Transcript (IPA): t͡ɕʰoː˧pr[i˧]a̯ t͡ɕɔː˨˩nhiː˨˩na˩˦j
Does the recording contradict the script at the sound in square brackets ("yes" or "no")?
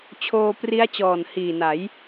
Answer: yes